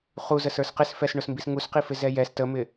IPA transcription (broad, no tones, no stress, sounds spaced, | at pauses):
χ u z ə s ə˞ s q ɪ s f ɛ s ɳ ʊ s m b i s ŋ u s q i f ɪ z ɛ j ɛ s t ə m ɪ